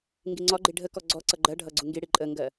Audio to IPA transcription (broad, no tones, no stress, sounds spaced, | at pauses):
ŋ ɡ i ŋ͡ǀ ɒ ɡ͡ǃ i ɖʱ ə k ɔ ɡ͡ǀ ɔ ǀ ʌ ɡ͡ǃ ɜ ɖʱ ʌ ɡ͡ǀ u ŋ ɡ i ɽ i ǃʼ ə ŋ ɡ ɜ